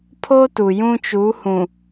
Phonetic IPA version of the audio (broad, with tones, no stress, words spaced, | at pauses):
pʰo˦tu˨ jũ˦t͡ʃu˨˦hũ˨